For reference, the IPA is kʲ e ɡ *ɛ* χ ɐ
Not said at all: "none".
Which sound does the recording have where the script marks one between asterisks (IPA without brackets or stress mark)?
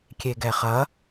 ɛ